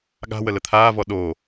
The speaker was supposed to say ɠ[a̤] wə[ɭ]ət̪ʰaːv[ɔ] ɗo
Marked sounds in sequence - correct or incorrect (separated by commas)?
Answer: correct, incorrect, correct